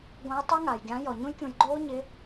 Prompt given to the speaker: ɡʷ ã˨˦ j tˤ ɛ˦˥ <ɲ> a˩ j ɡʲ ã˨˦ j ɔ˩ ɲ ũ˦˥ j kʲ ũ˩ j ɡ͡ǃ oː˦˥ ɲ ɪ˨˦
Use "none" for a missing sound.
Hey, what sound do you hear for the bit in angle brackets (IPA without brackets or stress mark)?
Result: ŋ